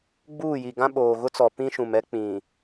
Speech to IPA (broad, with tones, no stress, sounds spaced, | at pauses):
ɡ͡b uː˦˨ j i˨ ɡ ã˦ ɓ oː˨ ɣ ʊ˦ t͡s ɔ˨ p ĩ˦ ʃ ũ˨ m ɛ˦ k͡p ĩ˨